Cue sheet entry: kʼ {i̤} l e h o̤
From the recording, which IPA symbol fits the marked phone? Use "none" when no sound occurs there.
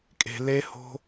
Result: e̤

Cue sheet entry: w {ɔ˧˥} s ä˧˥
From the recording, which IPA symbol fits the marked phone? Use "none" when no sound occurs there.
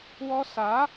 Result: ɔ˥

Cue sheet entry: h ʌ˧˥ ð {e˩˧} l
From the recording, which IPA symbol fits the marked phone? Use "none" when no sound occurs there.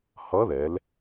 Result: ɛ˩˧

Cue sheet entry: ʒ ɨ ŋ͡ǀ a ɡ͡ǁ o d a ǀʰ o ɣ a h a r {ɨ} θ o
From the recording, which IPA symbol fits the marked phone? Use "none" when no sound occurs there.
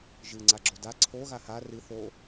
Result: ɨ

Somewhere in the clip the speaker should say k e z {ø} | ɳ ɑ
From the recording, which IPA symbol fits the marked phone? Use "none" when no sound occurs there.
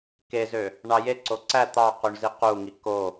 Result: ø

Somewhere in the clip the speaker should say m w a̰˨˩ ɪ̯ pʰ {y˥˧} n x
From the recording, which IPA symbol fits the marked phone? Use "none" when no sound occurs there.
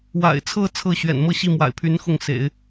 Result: y˧˥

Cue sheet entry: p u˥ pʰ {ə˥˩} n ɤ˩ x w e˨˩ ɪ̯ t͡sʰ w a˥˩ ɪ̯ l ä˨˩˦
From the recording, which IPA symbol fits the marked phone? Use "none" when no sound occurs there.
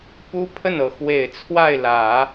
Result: ə˥˩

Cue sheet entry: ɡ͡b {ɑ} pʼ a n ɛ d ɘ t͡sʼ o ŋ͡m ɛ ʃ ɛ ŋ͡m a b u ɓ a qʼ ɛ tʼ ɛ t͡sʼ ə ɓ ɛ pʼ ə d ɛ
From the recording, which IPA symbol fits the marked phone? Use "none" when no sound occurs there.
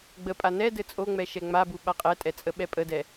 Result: ə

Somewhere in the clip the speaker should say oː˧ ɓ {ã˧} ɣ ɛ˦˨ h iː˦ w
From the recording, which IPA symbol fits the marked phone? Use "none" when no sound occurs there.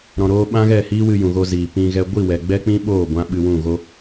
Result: ã˦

